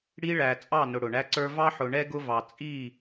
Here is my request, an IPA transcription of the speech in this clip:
ɽ i˦ ɭ æ˨ t͡sʼ ɑ˦˨ n ʊ˨ ɽ ʊ˨ ɳ æ˦ ǀ ə˞˦ v ɑ˦ ħ ʊ˨ ɳ ɛ˦ ɡ ʊ˦ v ɑ˨ t͡sʼ i˦˨

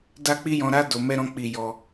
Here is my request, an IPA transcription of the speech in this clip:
d a˦ k͡p i˦ j ɔ̃˧ ɾ a˦ d o˧ m ɛ˦ ɾ ɔ̃˦ k͡p i˧ j ɔ˧

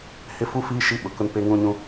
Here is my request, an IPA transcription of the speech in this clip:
h ɪ˦ f u˦ f iː˦ ʃ i˦ ɓ ʊ˨ k ʊ˦ n p e˦ ŋ ũ˦ ɲ ũ˦

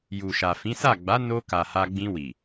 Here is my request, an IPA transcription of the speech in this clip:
j u˨ ʃ a˨ f ĩ˨˦ s a˦˨ ɡ͡b a˨˦ n o˧ k a˨ h a˧ ɡ͡b ĩ˧ w i˨

